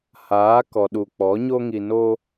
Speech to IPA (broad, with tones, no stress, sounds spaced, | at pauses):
h aː˨˦ k ɔ˨ ɗ u˨ k͡p ɔ˨˦ ɲ o˦ ŋ i˧ n o˦